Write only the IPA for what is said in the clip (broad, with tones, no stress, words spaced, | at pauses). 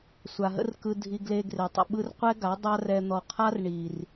sʷa˨ɦə̰˦rkɯ˧ dʱi˧ɡle˧ ɡre˨tˤə̰˨ɓɯ˦r qʷɛ˦ɡa˨˦ dˤa˦rɛ˧ n̪ɔ˨ qʰa˦r ɳi˨r